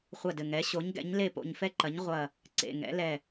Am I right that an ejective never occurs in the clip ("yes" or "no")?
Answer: yes